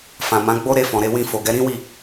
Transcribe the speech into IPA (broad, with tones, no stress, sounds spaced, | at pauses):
f ã˨ m ã˨˦ ɡ͡b o˦ ɾ e˧ f ɔ̃˨ ɾ e˧ w ĩ˧ f o˨ ɡ ɛ˨˦ ɾ ĩ˦ w i˦˨